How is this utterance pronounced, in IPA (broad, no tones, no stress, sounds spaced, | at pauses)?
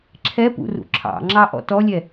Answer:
ǁʰ ɛ p ṵ r ṵ ǁʰ ɑ̰ ŋ͡ǁ ɑ ʔ ɔ̰ t ɔ lʲ ɛ